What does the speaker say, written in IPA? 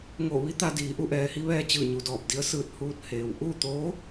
ŋ o˧˩ ʋ i˧˥ t̪ a˧ d iː˩˧ ʔ u˧ ʔ ɛː˩ h i˧˥ ʋ ɛː˧ t͡ɕ ɯː˧˩ ɲ u˩ d ɔː˧˩ p̚ d i˧˥ ə̯ s ɯː˧ t̚ h uː˧˥ t̚ h eː˩ w ʔ u˥˨ t̪ oː˧˥

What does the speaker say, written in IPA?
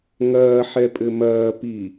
ŋ ɐː ħ ɛ pʼ ɘ m ɐː p i

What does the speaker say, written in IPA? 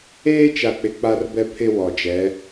eː˦ t͡ʃ a˨ k͡p ɪ˨ k͡p a˦ r b ɛ˦ pʰ ɪ˦ w ɔ˨ d͡ʒ ɛ˨˦

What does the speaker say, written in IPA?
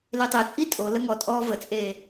l e tˤ e t͡sʼ i tʼ o l ə ŋ ɔ tʼ ɔː v ə t͡sʼ eː

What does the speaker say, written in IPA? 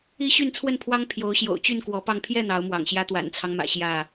i˦ ɕ y˥˨ n t͡sʰ w ə˥˨ n pʰ w ɑ˦ ŋ pʰ j o˨˦ ʊ̯ ɕ j o̰˨˩ ʊ̯ t͡ɕ y˥˨ n k w ɔ˨˦ p ɑ˧ ŋ pʰ j ɛ˥˨ n̪ ɑ˨˦ ʊ̯ m w ɑ̰˨˩ ŋ ɕ j ä˦ t̪ w a̰˨˩ n t͡sʰ ɑ˦ ŋ m ä̰˨˩ ɕ j ä˥˨

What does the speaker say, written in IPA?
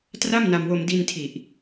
t r a˥˩ m n a˧ m w o˧ m d i˧ n tʰ i˨˩ ʔ

